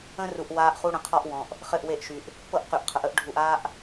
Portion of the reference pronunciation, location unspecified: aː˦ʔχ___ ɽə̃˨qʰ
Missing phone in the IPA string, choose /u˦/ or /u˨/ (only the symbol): u˦